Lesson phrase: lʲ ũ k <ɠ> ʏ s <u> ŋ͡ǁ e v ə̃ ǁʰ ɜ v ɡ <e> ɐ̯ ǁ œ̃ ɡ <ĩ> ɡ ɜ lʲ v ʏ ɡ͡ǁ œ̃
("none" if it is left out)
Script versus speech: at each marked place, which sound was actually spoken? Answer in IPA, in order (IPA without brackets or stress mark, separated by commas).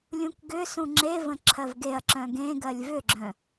ɡ, ũ, e, ẽ